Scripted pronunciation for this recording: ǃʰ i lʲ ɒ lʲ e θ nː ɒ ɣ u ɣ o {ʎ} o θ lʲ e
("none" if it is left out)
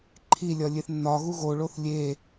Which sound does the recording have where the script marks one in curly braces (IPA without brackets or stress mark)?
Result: ɭ